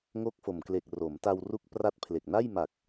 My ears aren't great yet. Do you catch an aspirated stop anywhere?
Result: yes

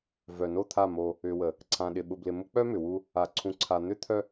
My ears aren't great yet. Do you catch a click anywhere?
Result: yes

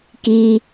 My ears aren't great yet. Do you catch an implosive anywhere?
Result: no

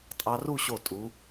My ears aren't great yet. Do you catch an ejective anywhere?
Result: yes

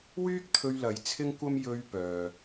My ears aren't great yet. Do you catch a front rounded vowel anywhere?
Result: yes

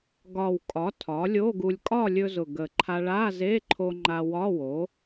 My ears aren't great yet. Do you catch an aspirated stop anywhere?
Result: yes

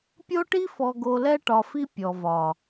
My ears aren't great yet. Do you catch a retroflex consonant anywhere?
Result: yes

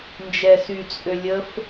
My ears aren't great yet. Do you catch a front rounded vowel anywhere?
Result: yes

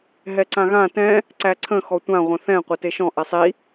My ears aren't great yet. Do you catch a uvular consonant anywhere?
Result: yes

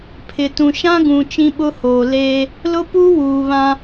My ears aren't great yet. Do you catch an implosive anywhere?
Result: yes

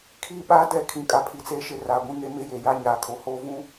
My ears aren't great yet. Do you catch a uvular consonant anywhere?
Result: no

